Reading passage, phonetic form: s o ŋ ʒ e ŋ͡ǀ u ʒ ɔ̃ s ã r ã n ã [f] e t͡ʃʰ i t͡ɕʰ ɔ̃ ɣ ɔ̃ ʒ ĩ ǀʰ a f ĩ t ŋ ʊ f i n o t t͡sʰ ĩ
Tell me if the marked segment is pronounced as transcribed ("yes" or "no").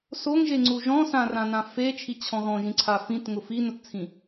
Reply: yes